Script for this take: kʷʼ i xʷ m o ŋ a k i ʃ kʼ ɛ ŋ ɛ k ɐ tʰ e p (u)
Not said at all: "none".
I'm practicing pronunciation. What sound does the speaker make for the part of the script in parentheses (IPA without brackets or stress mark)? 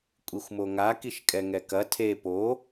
o